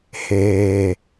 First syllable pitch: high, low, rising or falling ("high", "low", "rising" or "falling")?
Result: low